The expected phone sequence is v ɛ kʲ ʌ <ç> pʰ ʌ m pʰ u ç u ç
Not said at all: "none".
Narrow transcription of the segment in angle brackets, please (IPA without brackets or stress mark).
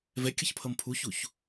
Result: ç